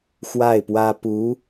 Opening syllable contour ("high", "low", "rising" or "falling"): falling